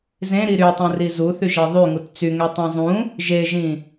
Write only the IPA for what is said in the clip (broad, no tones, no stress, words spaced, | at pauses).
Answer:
zẽɾi ɾytˤũri zuθyʒɛ ðˤyŋut t͡syŋɛtˤẽ zˤũ | ʒeʒĩ